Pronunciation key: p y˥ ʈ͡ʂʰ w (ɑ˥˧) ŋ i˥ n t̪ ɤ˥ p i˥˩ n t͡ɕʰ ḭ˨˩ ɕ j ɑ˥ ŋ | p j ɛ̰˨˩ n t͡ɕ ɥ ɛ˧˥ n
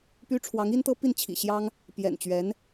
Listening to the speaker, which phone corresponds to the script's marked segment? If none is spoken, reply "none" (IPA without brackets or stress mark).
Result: ɑ˧˥